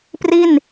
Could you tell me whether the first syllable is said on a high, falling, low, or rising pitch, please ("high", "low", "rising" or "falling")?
falling